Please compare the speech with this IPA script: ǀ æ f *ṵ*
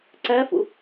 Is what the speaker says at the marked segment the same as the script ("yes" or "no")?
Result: yes